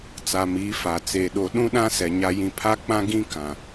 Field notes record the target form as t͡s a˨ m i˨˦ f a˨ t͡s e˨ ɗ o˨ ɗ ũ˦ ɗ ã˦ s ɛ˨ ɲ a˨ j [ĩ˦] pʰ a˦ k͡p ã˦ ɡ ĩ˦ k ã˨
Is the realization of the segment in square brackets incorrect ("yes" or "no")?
yes